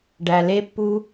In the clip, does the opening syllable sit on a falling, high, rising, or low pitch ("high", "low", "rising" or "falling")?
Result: low